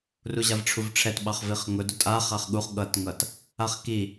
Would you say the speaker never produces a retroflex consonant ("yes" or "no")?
no